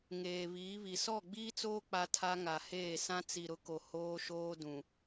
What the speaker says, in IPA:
ŋ eː˨ β iː˨˦ β i˨ s ɔ˦˨ ɡ͡b iː˦ t͡s oː˦ k͡p a˦ tʰ a˦ ŋ a˨ h eː˦˨ s ã˦ t͡s i˨ ɾ ʊ˦ k o˨ h oː˦ ʃ oː˦ d ũ˨

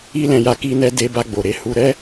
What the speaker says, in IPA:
i˦ l ɛ̃˧ j a˧ k i˧ n ɛ˧ d e˧ b a˧ ɡ͡b o˨ ɾ e˨˦ h u˧ ɾ ɛ˦

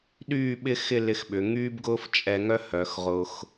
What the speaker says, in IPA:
ɗ yː˥˧ ɓ ɪ˥ x ɪ˥˧ l ɪ˧ x ɓ ʏ˩˧ ŋ yː˥ b ɡ ʊː˥ f t͡ʃʼ ɛ˧ ŋ œ˥ h œ˩˧ x ʁ ʊ˧ x

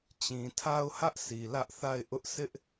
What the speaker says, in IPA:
t͡ɕ ĩ˨ tʰ a˦ ʊ̯ h ä˦ ʔ sʰ i˨ l ä˦ ʔ θ a˦˨ ɪ̯ ʔ ʊ˦ ʔ sʰ ɪ˦ ʔ

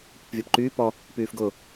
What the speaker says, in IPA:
p ʊ p vʲ ɒ p ǃ yː p ɔ | p yː f ɡ ʊ

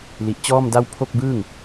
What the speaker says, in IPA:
l i˨˩ ʔ t͡ɕ ɔː˥˩ m d a˥˩ w pʰ o˥˩ k̚ b ɯː˥˩ ŋ

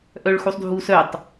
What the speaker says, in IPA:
ʔ œ ɭ x u sˤ dʱ u s œ tˤ

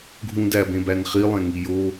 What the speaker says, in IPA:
ɡʱ ũ d æ b ẽ b æ n χ i lˠ ẽ ŋ i j o

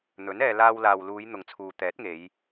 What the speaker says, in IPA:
n̪ ɵ˨˥ n ɛː˧ l aː˧ w l aː˨ w l uː˨˧ j n̪ ʊ˨ ŋ t͡sʰ uː˨ t̪ ɛː˨˥ t̚ ŋ e˨˧ j

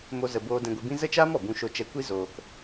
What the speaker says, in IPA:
m o˦ z ə˧ b oː˦ d ɛ̃˧ ɡʷ i˧ b ĩ˦ z ə˦ t͡ʃ aː˦ m ɔ˨ b ũ˦ ʃ o˧ t͡ʃ ɛ˧ kʷ i˦ z oː˧ k

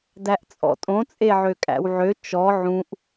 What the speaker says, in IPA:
d æ ʔ t͡sʼ ɔ̰ tʼ õ t͡sʼ e ʕ ø kʼ æ̰ w ʕ ø t͡ʃ ɔ ʕ ũ ʔ

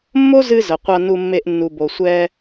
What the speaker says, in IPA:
mː o˦ z ɨ˧ z ə˨ qʷ a˧ n u˧ mː e˧ ʔ nː u˨ b o˨ sʷ ɛ˧

